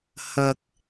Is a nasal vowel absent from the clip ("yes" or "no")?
yes